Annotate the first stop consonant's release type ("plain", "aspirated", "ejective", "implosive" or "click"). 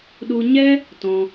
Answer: implosive